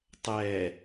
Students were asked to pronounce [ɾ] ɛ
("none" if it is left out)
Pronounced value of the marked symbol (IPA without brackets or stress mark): tˤ